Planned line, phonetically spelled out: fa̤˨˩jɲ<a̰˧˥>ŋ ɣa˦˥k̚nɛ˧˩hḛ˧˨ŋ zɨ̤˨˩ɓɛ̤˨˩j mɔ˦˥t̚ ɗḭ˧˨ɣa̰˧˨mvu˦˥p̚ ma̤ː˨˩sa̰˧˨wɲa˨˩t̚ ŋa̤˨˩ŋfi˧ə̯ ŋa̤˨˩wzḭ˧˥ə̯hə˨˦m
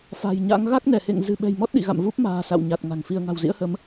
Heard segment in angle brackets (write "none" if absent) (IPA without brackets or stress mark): a̰˧˥